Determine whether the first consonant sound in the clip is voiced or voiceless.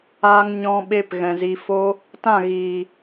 voiced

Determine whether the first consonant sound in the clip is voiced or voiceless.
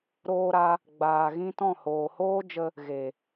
voiced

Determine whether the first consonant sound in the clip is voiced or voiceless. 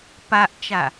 voiceless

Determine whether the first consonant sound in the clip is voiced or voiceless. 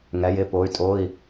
voiced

